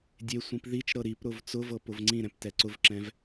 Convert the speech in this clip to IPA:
dʲesʷĩp ðit͡ʃ ɾɤɾipɾʊv t͡sʊvɤ pʊvŋ͡ǀĩɾɛ̃p tɛǀʊvǁɛ̃v

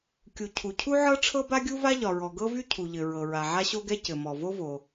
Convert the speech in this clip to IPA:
kʲu˩ cʰu˩ cʰu˥ʕɤ˥ʈ͡ʂʰɤ˥ba˥ ɡʲu˥va˥ʎɒ˩ɹɔ˩ ɡɤ˥vy˥cʰu˩ʎɘ˩ ɹɤ˩ɹa˩ʕa˥ ɕo˥ɡɛ˥ cɘ˩mɔ˩vo˥vo˩

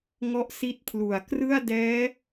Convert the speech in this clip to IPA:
ŋɔ˦˥ʔsi˦˥t̚pʰlu˨˩a̯ krɯ˥˩a̯dɛː˦˥

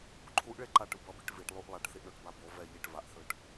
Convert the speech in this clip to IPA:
ǃʰuʔɭe ǃaʈɯ bʌbiʈ viʈlˠuʔ lˠaʈθiʔɳoʈba bo vɛ ʎiʈ vaʔθɯʈ

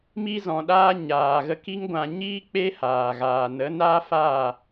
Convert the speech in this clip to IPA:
mi˧zɔ̃˨ɗaː˧ ɲaː˨ɣə˧ki˦ŋɡʷã˧ ɲiː˦ k͡pe˦haː˨ɣaː˨ nə˨˦naː˦faː˦˨

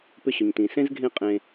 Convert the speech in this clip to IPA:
pʏ˧ɕʏ˨ɲtĩ˨ sẽ˦zɡʱẽ˦˨ qʼẽ˧

